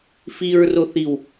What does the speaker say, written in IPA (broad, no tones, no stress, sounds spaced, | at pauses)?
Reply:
f i ɹ r o θ i w